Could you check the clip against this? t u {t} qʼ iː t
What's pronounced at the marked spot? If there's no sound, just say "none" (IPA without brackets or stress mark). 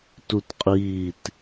t